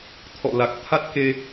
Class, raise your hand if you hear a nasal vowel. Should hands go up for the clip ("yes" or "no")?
no